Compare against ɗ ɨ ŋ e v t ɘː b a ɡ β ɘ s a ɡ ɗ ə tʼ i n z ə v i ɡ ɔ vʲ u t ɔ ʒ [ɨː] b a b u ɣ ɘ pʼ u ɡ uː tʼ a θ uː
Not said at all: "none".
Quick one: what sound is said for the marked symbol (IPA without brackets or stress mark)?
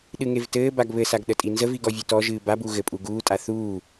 ɨː